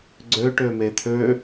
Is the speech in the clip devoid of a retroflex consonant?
no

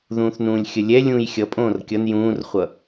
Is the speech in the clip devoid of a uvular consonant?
no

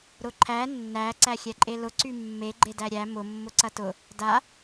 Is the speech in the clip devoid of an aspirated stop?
no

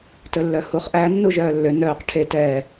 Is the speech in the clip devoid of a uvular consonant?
no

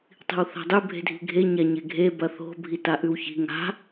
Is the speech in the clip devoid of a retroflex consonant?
yes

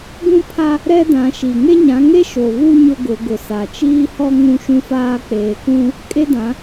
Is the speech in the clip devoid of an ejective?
no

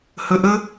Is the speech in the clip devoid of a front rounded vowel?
yes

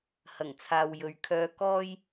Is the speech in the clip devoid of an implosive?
yes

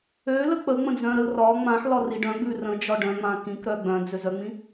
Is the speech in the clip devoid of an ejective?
yes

